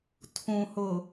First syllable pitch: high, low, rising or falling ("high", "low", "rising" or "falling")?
low